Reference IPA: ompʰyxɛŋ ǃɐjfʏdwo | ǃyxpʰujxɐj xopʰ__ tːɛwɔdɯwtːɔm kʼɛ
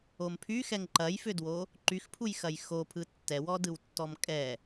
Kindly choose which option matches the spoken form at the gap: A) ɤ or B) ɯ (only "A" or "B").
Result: B